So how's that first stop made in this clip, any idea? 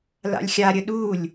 implosive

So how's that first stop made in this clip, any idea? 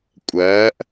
ejective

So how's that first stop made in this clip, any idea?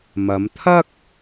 aspirated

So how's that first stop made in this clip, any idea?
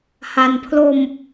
aspirated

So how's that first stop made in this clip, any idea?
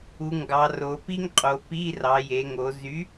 plain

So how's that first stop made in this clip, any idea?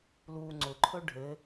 click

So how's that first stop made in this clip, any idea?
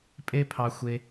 ejective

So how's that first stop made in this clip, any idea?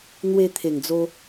aspirated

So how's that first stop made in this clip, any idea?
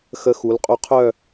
ejective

